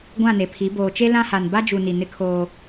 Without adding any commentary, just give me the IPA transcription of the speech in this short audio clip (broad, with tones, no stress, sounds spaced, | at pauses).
ɡʷ ã˦˨ n e˨ pʰ i˨˦ b oː˨ t͡ʃ e˦ l ã˦ h a˨ n b a˦ d͡ʒ u˨ n i˨ n ɪ˦ kʰ oː˦